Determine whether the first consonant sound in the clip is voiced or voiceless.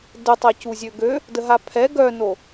voiced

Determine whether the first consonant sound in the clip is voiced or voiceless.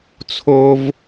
voiceless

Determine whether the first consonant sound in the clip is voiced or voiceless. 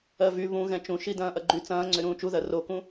voiced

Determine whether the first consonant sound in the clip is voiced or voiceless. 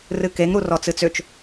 voiced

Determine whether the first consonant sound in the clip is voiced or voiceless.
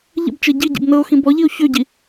voiced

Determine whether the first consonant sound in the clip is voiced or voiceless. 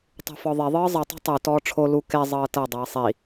voiceless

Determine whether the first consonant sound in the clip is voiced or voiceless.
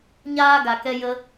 voiced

